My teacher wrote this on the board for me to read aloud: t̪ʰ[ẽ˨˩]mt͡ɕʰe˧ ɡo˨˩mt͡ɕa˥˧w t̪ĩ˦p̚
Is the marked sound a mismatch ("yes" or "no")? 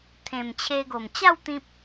no